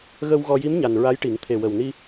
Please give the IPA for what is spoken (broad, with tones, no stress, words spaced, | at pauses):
ɣə˧w ɣɔ˧ ji˧˥mɲa˨˩n ɹa˧˥jʈi˨˩˦ŋ t̪ʰe˨˩wə˨˩wni˧